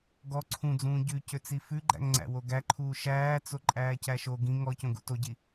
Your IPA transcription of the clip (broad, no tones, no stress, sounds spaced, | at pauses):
ɡ ɔ ǀʰ ũ d͡z ũː ɟ ʉ c ø t͡s i f ʉ ɡ͡ǃ æ̰ ŋ ŋ͡ǀ æ̰ w o ɡ æ ǃʰ uː ʃ æː t͡s o ǃʼ æː c æ ʃ o ɡ ĩ ŋ ɔ c õ ɡ ṵ t o ɟ i